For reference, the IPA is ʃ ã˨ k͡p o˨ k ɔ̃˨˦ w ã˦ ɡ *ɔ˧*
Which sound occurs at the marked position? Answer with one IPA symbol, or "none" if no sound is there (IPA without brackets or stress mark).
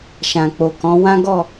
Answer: ɔ˦˨